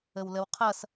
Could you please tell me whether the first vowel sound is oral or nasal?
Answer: oral